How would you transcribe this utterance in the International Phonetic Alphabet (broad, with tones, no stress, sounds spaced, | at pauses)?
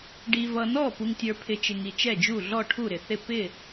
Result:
ɖ i˨ v ʌ˨ n ɔ˥˩ p u˨ ŋ tʲ ə˞˨ pʰ ɪ˨ t͡ʃ ɪ˨ ŋ i˨ t͡ʃ ɛ˥˩ d͡ʒ u˥˩ ɮ ɔ˥˩ ʈʰ u˥˩ ɾ ɪ˨ θ ɪ˥˩ p ɪ˥˩